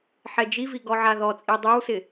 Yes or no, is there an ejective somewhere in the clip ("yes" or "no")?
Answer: yes